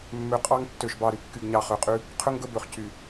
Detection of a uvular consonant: present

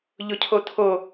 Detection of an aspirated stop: present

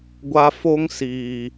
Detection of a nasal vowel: absent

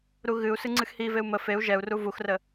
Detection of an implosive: absent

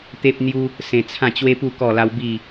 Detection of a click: absent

